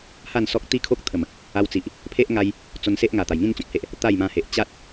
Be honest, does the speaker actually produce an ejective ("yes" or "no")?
no